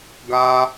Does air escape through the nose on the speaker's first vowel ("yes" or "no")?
no